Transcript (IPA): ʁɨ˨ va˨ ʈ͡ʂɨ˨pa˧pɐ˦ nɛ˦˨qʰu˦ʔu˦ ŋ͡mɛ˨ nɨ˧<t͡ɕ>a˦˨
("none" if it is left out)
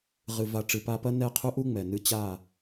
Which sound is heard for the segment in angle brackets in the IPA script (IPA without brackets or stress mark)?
t͡ɕ